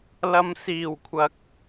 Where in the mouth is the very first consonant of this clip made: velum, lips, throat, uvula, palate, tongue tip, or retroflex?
tongue tip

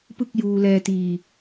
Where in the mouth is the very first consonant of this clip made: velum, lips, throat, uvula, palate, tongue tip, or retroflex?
lips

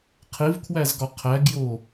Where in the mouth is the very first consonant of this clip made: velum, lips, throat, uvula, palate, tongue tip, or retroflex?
uvula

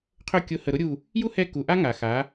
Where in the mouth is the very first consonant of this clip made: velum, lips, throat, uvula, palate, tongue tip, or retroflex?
uvula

